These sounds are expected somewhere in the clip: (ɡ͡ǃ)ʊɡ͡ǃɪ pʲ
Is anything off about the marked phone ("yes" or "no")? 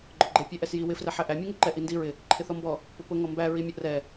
no